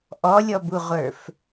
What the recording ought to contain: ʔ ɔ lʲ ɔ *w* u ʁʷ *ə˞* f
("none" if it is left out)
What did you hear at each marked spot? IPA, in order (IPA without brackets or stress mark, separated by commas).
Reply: b, ə˞